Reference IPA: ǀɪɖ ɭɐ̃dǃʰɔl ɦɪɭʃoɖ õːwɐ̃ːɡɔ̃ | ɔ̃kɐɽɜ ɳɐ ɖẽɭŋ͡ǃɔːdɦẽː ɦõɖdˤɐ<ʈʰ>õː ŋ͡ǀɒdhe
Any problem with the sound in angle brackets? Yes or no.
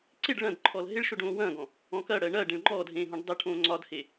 no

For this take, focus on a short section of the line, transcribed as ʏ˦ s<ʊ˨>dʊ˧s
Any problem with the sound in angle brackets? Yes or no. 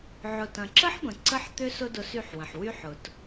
yes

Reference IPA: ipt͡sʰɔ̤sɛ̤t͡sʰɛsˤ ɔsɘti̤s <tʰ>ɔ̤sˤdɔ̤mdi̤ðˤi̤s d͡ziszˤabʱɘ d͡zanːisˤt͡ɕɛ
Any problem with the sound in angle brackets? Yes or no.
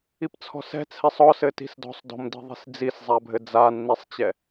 yes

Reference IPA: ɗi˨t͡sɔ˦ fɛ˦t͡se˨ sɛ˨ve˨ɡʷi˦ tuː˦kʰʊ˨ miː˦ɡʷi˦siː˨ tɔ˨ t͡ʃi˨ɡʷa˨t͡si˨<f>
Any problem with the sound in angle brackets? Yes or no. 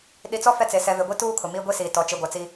yes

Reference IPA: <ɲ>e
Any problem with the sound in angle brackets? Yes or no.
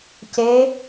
yes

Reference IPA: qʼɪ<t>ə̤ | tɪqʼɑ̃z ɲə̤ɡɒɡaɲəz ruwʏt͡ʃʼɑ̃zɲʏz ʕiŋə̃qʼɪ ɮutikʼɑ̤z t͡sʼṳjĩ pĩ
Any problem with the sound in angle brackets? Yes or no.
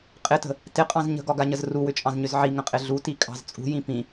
no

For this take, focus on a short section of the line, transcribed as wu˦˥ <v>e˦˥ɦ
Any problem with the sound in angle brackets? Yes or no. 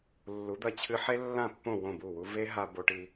no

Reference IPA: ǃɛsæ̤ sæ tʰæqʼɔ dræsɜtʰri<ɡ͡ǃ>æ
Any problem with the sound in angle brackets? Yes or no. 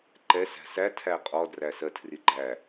no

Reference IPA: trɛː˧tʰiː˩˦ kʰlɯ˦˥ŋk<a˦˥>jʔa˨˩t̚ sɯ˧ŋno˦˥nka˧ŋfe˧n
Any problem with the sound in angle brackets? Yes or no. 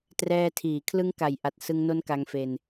yes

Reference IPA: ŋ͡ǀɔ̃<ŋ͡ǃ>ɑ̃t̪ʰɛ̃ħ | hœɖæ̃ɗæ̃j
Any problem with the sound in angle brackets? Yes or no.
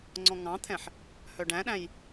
yes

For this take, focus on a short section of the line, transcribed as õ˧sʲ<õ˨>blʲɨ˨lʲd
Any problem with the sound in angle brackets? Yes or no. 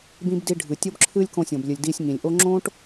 no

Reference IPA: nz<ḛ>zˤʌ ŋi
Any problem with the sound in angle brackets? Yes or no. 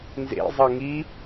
no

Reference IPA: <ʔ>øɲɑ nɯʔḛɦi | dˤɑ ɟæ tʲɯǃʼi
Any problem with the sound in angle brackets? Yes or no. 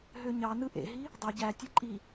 yes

